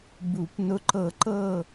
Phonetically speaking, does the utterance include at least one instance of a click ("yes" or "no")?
yes